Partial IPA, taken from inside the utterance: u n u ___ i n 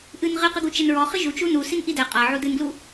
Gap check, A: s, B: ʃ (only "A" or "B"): A